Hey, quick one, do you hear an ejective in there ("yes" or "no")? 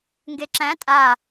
yes